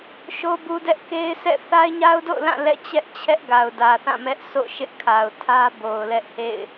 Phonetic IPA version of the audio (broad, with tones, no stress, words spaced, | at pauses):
ʃo˦bu˦dɛ˦ʔ ke˦ɪ̯sɛ̰˦˨ θa˦ɪ̯ɲa˦ʊ̯do̰˦˨ʊ̯lã˦˨ lɛ̰˦˨t͡ɕɛ˦ʔt͡ɕʰɛ˦ʔ ɡa˨ʊ̯dä˨θã˦˨ mɛ˦ʔso̰˦˨ʃɪ˦ʔ kʰa˨ʊ̯tʰä˦ bo˨ʊ̯lɛ˦ʔhḛ˦˨ɪ̯